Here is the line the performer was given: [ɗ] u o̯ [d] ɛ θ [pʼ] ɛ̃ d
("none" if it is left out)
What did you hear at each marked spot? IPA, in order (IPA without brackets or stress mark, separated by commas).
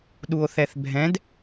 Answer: ɗ, θ, bʱ